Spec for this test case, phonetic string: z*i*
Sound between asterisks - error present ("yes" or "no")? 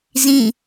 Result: yes